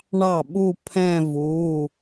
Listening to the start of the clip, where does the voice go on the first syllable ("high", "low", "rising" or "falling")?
falling